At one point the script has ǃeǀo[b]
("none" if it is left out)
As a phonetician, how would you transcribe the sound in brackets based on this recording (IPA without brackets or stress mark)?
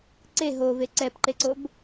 b